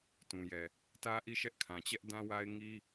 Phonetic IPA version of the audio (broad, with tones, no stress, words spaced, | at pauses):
tũ˨jɛ˨ | tä˦ʔi˦˨ʃɛ˦ʔ kʰã˨t͡ɕɛ˦ʔdã˦wa˦ɪ̯ ŋi˦